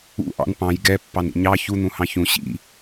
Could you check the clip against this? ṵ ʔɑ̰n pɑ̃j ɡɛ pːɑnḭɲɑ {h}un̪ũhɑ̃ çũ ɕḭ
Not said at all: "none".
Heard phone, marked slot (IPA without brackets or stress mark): ç